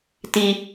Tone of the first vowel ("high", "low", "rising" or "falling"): high